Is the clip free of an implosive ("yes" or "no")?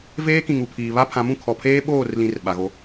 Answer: no